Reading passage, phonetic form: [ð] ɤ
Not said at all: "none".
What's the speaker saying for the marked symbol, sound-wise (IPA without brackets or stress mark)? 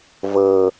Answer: v